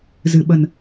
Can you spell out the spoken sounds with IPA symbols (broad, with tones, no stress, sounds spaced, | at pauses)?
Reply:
z ɨ˨˩ ɓ ə˨˩ n